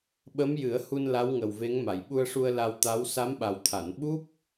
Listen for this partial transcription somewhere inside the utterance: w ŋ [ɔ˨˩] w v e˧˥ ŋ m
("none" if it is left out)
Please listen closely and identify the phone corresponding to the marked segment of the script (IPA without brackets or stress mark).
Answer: ə˨˩